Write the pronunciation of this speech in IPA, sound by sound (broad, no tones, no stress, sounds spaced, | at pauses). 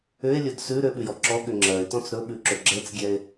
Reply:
ʏ e̯ lʲ ɵ d s ʉ ɾ ʏ ɓ ʉ j ɔ ǁ ɔ ɠ ʏ ŋ͡ǁ ɜ e̯ t ɔ̃ t͡s ɾ ɵ ɓ ʉ ǁ ɵ ɡ͡ǁ ɛ t͡s ɡʲ ɛ e̯